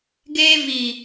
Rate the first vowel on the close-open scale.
mid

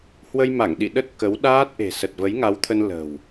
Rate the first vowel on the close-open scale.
mid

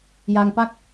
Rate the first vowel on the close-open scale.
open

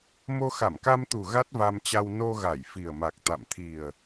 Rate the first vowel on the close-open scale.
mid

